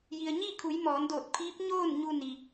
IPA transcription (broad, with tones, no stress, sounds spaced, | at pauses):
j i˩ ə̯ ɲ iː˥˨ kʰ u˩˧ j m ɔː˩˧ n d oː˧˩ t̚ pʰ iː˧˥ p̚ ɲ oː˥˨ n ɲ u˧ n i˩